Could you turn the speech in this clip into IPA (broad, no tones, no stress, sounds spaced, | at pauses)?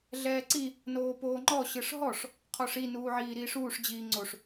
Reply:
ɮ ɛː ǀ i | n oː p oː ŋ͡ǃ ɔ ɕ ɯ ʂ ɦ ɔ ʂ | qʰ ɔ ʂ i n uː ʕ iː ɾ iː ʂ uː ʂ d͡ʑ iː ŋ͡ǀ o ʂ